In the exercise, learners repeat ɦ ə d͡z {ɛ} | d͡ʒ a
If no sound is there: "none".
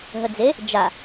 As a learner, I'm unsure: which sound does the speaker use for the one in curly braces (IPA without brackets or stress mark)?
e